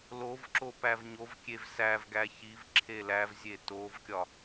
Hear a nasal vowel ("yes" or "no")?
no